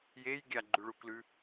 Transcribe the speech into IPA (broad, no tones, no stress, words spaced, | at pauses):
jej ɡʲaɡ͡ǃʉɭuklʉ